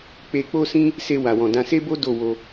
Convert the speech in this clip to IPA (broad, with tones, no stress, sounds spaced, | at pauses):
k͡p e˧ k͡p o˦ s ĩ˦ | s e˧ w a˨ w ɔ̃˨ d ã˧ s e˦ b o˦ d o˦˨ w o˧